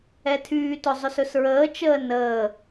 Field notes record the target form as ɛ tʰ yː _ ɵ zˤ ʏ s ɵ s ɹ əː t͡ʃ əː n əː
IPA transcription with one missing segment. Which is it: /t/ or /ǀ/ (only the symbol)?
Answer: t